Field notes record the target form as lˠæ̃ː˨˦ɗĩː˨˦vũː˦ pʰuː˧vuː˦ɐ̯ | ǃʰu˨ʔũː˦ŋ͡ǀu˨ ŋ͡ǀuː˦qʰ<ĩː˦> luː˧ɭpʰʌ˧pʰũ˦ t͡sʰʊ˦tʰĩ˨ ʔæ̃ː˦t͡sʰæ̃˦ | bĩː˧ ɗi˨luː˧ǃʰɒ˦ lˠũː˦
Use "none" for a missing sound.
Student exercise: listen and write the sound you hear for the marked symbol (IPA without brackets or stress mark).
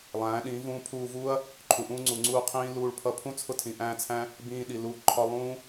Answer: ĩː˦